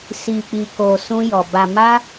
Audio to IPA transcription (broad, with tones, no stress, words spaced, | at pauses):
si˨k͡pi˨ko˨ sũ˧jɔ˨ ba˨ma˧